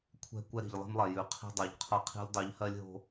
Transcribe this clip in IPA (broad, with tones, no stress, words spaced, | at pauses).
kʷʰɛ̤˦ kʷɛ˦ɾi̤˨ʎ lˠi̤˦mlˠɛ˨ jʉ˨ qʰi̤˦dˤœ˨ʎ qʰɤ˦qʰi̤˦lʲ dˤʉ˨˦ʎhɜ˦lʲɦo̤˦